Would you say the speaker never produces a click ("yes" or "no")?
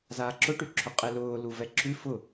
no